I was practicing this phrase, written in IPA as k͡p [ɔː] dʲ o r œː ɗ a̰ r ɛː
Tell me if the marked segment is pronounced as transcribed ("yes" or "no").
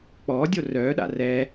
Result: yes